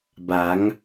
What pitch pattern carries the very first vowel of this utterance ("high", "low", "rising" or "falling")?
rising